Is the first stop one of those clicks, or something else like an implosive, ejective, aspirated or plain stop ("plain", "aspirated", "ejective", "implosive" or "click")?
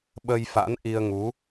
implosive